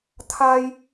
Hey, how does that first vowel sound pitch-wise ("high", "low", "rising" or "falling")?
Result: high